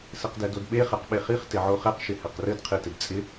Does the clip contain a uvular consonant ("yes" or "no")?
yes